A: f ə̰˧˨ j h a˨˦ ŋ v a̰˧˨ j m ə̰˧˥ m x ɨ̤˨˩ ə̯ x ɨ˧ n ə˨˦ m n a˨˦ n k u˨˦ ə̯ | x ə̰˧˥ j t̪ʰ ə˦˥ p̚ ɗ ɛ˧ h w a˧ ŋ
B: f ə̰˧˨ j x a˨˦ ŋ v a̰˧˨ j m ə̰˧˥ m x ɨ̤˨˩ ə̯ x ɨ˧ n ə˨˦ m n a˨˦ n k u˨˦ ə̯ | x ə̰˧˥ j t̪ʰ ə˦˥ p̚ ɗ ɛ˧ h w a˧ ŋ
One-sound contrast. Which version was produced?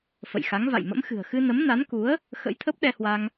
B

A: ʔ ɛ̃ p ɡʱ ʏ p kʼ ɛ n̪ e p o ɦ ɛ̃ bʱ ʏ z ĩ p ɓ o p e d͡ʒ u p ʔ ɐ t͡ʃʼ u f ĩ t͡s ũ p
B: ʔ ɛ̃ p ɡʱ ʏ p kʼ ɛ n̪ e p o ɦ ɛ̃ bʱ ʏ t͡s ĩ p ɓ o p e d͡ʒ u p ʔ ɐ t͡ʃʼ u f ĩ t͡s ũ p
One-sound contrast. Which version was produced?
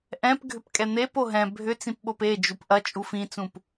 B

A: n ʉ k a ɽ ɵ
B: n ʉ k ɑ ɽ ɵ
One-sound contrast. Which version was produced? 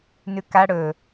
A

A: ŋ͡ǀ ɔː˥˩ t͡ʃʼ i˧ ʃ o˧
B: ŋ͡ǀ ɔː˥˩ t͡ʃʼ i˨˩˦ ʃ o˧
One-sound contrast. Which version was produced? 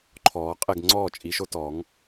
B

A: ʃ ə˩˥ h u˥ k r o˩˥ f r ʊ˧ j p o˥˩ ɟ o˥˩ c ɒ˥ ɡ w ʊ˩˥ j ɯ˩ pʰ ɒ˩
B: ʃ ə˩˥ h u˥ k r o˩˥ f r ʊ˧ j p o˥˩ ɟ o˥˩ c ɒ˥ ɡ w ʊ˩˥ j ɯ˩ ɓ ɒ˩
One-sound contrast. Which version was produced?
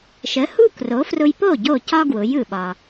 B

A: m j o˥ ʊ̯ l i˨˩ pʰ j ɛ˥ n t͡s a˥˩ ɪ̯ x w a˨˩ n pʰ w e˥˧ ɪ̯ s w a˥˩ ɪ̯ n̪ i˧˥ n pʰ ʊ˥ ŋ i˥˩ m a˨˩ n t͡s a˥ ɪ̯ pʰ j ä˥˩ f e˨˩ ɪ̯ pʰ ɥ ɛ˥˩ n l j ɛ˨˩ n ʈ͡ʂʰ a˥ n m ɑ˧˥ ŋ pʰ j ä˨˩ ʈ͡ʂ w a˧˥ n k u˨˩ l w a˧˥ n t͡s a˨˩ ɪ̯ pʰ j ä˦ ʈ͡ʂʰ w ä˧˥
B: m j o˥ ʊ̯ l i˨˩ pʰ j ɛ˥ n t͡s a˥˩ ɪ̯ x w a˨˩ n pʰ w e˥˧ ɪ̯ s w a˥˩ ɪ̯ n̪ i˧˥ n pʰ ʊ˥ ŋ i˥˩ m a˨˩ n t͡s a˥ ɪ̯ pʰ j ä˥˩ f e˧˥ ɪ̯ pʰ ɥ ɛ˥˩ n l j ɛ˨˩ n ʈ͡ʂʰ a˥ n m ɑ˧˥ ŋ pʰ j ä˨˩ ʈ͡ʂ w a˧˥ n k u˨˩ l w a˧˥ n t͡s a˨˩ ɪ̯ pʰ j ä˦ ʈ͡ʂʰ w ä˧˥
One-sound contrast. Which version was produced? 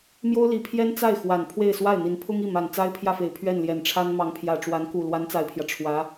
A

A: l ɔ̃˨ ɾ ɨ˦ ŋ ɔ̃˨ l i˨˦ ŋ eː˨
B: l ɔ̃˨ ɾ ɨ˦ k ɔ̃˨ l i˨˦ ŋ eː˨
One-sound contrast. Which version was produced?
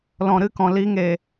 B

